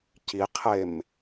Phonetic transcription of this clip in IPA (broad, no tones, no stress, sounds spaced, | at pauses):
c i qʰ e m